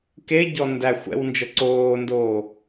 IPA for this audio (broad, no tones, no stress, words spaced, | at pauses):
keɟɔ ndæ xʷɛ̰wnd͡ʒɤ ǀoːndoː